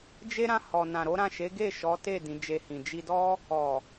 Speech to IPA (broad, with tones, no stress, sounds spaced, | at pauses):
d͡ʒ e˦ ɾ ã˦˨ h ɔ˨ n ã˨ ɾ o˨˦ ɾ ã˦˨ ʃ e˨˦ ɡ e˦˨ ʃ ɔ˨˦ t e˦˨ d ĩ˨˦ d͡ʒ e˧ h ĩ˨ d͡ʒ i˧ d ɔ˦ | ɔ˨